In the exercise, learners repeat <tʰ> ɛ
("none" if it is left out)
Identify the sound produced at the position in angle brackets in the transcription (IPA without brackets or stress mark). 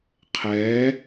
qʰ